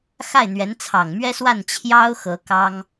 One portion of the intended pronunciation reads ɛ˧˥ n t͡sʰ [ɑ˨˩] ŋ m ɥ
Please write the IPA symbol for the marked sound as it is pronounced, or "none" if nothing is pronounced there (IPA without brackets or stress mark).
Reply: ɑ˨˩